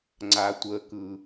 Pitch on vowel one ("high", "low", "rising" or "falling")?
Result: low